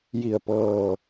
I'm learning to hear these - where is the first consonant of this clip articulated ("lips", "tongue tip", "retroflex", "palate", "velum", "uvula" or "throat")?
palate